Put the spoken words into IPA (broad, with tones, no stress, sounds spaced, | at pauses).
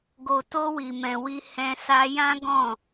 ɡ o˨ t o˧ w i˨ m ɛ̃˨ w i˧ h ɛ̃˧ s a˧ j ã˦ ɡ ɔ̃˦˨